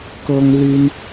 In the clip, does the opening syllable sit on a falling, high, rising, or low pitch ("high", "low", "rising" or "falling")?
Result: high